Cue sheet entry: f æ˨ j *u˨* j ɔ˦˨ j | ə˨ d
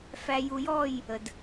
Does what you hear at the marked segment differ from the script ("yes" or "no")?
no